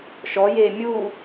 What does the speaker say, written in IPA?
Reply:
ʃ ɔ j eː mʲ u

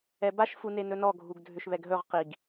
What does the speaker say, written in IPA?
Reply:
ɛ b a ʃ f u n e n ɵ n ɔ ɡʱ u ɡ dʱ ʏ ʃ β ɛ ɡ ɦ ɵ ʁ q i ɡ

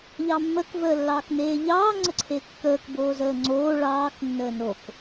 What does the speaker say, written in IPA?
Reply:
ʎ ɑ mː ə k v əː lː ɑː k n eː ʎ ɑː ŋ͡ǀ ə ǀʰ e kː əː k b oː z əː ŋ͡ǀ oː ɭ ɑː k nː əː n o k

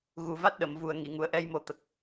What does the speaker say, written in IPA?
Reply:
ɣ u˨˩ v a˦˥ t̚ ɗ ə˨˩˨ m v u˨˩ ə̯ ŋ i˨˩˨ ŋ u˨˩ ə̯ ʔ ɛ˧ j m o˨˩˦ t̪ ə˨˩ k̚

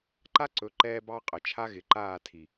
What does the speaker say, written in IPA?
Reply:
ǃ a˦ ǀ ɵ˨˦ ǃ ɛː˧ b ɑ˦ qʼ ə˨ t͡ʃʰ a˦ ɣ ɪ˨ ǃ aː˦˨ tʰ i˨

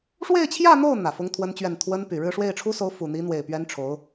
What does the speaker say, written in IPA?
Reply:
ʂ w e˥˧ ɪ̯ t͡ɕʰ j ä˥˧ n̪ o˥˩ ʊ̯ n̪ ä˨˩ f ʊ˥ ŋ t̪ʰ w ə˥ n t͡ɕ ɥ ɛ˥˩ n t̪ʰ w ə˥ n p y˨˩ ɻ ɻ̩˥˧ ʂ w e˥˩ ɪ̯ ʈ͡ʂʰ u˥ s o˧˥ ʊ̯ f u˨˩ n̪ i˧˥ n̪ w e˨˩ ɪ̯ p ɥ ɛ˥ n ʈ͡ʂʰ o˧˥ ʊ̯

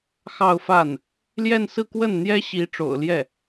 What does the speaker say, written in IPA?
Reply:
x ɑ˥˧ ʊ̯ f a˥˩ n | l j ɛ˥˧ n s ɹ̩˥˧ k w ə˥˩ n n̪ j ɛ˥ ɕ i˧˥ ʈ͡ʂ o̰˨˩ ʊ̯ l j ɛ˥˩

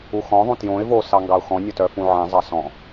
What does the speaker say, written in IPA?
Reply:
u x ɔ̃ ðˤ ũ t j õ ɪ̯ v o s ɑ ŋ ɡ ɑ ʊ̯ x ɔ̃ nʲ ɔ t œ f ũ ʕ ẽ zˤ ɑ s ɔ̃

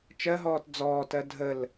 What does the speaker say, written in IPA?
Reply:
t͡ʃ ɜ ɦ ɔː t d͡z ɔː t ɜ dʱ ə l

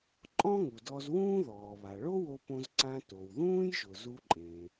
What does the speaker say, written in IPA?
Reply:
ǃʼ ɔ̃˥ ŋ u˩ d ɔ˧ z w ũː˥ ð ɔː˩ β a˩ ɭ o˥ w o˧ p õ˧ z ǀ ã˧ t o˩ w ð ũː˥ j ʒ ʊ˩ z u˧ ǃʼ ẽ˩

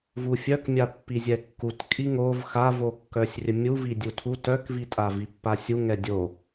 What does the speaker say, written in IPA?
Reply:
v u fʲ œ k mʲ a pː i zʲ ɛ kː u t kʼ i ŋ o v x a v o kː œ sʲ rʲ ə mʲ u v i dʲ u tʰ u t œ k v i tʼ a v i pː a sʲ u ŋ ɛ dʲ o

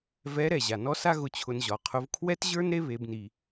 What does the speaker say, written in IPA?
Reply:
v ɛ˧˥ ɾ ɛ˩ ʑ a˩ n ɔ˥ s a˥ ɣ ʊ˧ t͡ɕʰ ʊ˧ n ʑ ɒ˩˧ qʰ ʊ˧˥ v kʰ w ɛ˥ t ʑ ə˞˥ n ɾ e˥ β e˩˧ b n i˩

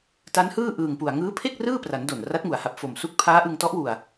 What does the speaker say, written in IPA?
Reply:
t a˦˥ n h ɯː˥˩ ʔ ɯː˨˩ ŋ p u˨˩ a̯ ŋ ɯː˦˥ pʰ e˥˩ k̚ r ɯː˥˩ p r a˩˦ n d o˨˩ n r a˦˥ t̚ ŋ u˩˦ a̯ h a˨˩ p̚ f o˨˩ m s u˥˩ k̚ pʰ aː˦˥ ʔ ɯ˧ ŋ t ɔ˦˥ ʔ w u˧ a̯

